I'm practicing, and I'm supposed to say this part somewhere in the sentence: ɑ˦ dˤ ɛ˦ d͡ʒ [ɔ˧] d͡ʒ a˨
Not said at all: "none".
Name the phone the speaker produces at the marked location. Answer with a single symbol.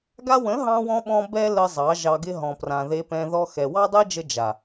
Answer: ə˧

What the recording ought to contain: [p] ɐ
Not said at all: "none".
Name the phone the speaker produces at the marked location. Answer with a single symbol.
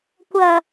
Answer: kʷ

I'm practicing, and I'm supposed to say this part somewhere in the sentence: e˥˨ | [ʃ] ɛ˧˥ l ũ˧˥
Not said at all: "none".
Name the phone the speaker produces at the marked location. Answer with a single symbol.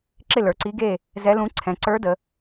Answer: z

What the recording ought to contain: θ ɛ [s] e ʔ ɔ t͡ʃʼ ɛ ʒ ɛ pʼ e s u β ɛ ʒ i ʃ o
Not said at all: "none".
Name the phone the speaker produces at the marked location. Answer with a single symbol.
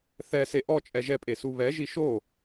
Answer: s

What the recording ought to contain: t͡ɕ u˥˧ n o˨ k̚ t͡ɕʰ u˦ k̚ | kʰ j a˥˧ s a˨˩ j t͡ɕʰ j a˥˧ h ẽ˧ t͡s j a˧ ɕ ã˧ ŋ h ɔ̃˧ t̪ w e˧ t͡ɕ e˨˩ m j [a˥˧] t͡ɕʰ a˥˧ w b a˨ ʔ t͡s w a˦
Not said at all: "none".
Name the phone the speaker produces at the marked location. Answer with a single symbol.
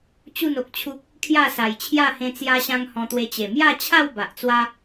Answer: a˥˧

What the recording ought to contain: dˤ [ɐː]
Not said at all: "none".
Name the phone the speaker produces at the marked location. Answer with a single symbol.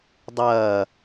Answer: ɐː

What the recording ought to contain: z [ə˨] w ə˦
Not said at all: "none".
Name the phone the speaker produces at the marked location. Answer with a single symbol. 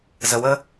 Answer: ə˨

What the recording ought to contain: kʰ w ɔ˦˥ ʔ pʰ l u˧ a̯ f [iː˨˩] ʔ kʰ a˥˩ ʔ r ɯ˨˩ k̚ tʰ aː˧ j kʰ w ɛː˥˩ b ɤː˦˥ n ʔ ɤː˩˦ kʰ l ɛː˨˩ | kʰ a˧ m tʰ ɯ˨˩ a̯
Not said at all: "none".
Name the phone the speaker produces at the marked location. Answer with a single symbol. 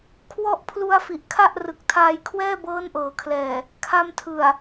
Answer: i˨˩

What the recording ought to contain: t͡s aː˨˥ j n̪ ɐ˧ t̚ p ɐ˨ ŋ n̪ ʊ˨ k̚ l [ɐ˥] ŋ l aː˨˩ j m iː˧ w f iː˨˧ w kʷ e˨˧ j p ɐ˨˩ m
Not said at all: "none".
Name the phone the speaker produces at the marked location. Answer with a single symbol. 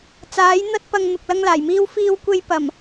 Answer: ɐ˧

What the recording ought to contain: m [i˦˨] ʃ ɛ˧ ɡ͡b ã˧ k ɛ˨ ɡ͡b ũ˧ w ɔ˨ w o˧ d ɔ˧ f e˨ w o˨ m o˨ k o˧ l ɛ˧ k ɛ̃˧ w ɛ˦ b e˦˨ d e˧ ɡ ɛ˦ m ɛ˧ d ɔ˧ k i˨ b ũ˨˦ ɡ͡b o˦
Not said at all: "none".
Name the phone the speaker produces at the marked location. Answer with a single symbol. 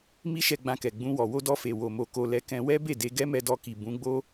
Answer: i˦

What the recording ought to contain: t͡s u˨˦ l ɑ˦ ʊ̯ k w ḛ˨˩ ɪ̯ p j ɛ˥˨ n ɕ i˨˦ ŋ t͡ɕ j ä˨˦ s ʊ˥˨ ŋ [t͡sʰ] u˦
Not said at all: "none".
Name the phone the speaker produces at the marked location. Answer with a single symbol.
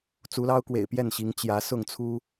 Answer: t͡sʰ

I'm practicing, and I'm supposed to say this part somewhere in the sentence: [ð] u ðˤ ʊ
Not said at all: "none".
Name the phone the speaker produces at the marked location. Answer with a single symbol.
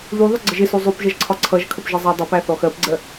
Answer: ð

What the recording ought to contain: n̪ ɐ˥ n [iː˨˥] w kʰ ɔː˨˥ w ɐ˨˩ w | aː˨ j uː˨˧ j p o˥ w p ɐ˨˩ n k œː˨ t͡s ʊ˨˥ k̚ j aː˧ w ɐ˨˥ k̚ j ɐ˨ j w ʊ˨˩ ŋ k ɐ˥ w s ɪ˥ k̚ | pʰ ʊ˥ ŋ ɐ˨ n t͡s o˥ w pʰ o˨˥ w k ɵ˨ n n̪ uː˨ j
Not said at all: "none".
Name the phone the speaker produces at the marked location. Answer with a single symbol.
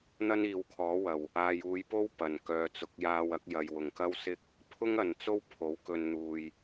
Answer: iː˨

